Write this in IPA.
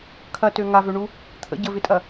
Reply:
kʰ ɐ t ø ŋ a v ø ɳ u | t̪ʰ ə̰ ɟ ə v ɪ tʼ ɐ

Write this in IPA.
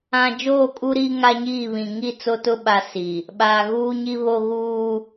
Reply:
ã˦ d͡ʒ oː˦˨ kʼ u˦ ɾ iː˦ ŋ a˦ ɲ iː˦˨ β ĩ˨ ŋ i˦˨ t͡s o˦ t ʊ˦ ɓ a˦ s i˨ | ɓ aː˨ ɣ uː˦ ɲ i˦ β o˦ ɣ uː˦

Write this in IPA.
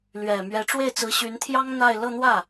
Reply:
l ɥ ɛ˨˩ m ɥ ɛ˧˥ ʈ͡ʂ w e˥˩ ɪ̯ t͡s ɹ̩˧˥ ɕ y˧˥ n t̪ʰ j ɑ˥ ŋ n̪ a˥˧ ɪ̯ l ɤ˥˧ n̪ w ä˥˩

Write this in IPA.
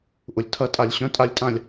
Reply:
ʔ ʊ˩ lʲ tʰ ɐ˩˧ tʼ a˩ lʲ ɕ œ̃˩˧ tʼ a˩˧ lʲ tʼ ã˩ lʲ

